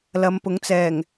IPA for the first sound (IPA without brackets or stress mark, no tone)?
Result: l